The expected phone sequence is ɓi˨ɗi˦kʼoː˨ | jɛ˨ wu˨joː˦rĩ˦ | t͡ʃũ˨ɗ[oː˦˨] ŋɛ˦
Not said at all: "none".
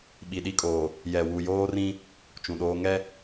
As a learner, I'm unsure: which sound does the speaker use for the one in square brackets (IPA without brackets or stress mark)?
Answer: oː˦